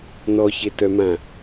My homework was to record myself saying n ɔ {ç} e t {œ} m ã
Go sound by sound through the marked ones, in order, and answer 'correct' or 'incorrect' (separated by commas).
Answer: correct, correct